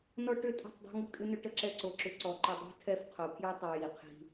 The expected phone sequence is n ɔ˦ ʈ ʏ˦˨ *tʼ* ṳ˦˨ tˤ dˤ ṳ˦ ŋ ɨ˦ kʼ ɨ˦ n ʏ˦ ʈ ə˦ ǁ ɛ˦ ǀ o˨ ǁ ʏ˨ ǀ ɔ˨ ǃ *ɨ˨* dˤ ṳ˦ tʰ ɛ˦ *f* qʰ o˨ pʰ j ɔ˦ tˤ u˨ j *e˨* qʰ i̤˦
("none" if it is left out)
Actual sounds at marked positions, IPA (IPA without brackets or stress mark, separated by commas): tʼ, i˨, f, i˨